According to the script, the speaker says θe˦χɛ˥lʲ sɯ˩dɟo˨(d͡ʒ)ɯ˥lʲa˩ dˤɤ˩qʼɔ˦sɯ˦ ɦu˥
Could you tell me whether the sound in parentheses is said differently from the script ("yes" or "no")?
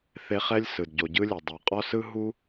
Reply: yes